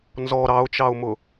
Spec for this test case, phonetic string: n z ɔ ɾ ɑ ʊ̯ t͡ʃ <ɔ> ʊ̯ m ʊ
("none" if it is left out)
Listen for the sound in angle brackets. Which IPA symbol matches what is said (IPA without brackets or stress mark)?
ɑ